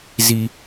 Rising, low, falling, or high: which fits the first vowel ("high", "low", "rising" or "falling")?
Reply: low